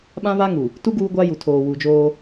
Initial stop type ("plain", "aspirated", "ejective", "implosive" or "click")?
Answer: implosive